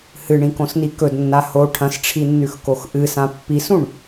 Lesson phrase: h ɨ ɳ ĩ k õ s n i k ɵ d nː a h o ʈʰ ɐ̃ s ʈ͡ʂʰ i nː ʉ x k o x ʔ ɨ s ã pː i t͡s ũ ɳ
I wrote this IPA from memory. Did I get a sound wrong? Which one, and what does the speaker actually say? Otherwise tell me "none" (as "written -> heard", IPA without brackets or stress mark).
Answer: t͡s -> s